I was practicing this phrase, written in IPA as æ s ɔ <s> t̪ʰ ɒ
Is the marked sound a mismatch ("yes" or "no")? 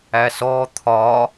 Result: yes